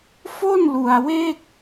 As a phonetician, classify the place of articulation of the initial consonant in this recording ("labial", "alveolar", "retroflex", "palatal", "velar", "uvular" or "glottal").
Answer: labial